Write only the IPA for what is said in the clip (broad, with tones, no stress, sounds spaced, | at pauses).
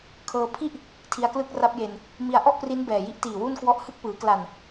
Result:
kʰ ɤː˧ pʰ i˥˩ ʔ | tʰ i˧ a̯ k l ɯ˥˩ k̚ r a˦˥ p̚ j e˧ n | m i˧ a̯ ʔ ɔ˥˩ ʔ p r i˦˥ n b ɛː˨˩ j i˦˥ ʔ t iː˨˩ w u˥˩ n k w ɔ˦˥ ʔ h ɯ˥˩ k̚ p ɯː˩˦ k l a˨˩ n